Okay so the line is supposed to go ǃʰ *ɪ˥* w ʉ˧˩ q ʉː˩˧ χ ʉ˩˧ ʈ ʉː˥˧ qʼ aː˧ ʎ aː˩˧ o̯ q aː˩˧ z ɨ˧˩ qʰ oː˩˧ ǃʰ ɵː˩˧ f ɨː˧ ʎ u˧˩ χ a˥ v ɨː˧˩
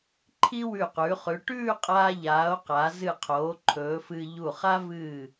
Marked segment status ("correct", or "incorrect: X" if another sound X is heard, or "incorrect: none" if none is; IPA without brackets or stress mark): incorrect: i˥